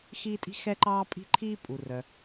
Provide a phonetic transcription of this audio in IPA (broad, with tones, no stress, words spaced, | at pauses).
xiː˥tʼi̤˥ xɛ˥ǃɑː˥pʼi̤˥ǃʰiː˥ pʼu˩rœ˩